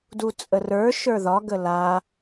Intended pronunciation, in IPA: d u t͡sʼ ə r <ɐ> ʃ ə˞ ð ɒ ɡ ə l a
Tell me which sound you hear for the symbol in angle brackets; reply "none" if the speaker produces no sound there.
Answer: ə˞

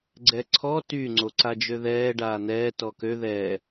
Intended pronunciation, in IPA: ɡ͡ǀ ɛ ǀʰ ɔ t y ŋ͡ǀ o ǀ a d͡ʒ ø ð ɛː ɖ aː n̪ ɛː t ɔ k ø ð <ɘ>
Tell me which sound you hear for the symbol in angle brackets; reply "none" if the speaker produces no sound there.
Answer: ɛ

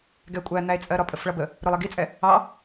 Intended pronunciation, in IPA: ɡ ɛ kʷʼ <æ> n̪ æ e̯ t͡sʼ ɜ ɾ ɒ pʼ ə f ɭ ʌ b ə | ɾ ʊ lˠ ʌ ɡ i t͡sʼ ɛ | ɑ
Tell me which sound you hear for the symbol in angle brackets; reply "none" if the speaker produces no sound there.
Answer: æ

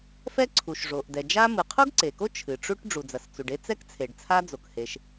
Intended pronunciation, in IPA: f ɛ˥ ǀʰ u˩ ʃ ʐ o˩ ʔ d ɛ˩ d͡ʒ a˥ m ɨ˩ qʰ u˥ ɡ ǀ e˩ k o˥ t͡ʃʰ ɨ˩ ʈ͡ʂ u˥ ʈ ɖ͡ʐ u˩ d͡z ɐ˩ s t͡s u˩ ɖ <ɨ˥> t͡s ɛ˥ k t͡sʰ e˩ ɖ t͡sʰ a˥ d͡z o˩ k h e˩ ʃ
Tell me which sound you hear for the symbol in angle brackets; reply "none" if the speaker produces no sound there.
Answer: e˥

